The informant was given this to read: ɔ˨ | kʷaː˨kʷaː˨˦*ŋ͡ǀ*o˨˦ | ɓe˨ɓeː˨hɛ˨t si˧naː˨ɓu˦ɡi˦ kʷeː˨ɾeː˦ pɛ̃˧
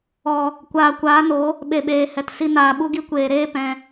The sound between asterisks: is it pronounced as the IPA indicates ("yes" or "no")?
no